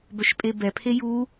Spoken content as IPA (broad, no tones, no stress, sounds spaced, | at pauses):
b œ ʃ pʼ e b ɛ pʰ e j u